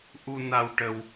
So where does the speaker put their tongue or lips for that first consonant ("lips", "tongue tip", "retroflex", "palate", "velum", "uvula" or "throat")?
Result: throat